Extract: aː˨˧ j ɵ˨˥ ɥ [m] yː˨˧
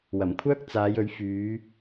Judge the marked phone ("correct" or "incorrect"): incorrect